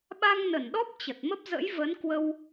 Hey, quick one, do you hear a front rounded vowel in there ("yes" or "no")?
no